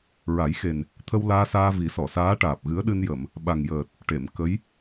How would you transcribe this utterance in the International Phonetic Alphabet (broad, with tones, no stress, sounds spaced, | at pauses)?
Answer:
ɹ a˨˩˦ j x e˨˩ n | t̪ʰ ə˧ w l aː˧ s aː˧ v i˨˩˦ s ɔ˨˩˨ s aː˧˥ ʈ aː˨˩ p̚ ɣ ɨ˧˥ ə̯ ɗ ɨ˧ n j ə˨˩˨ m | ɓ a˨˩ ŋ j əː˨˩ t̚ | ʈ e˨˩˨ m k ə˧˥ j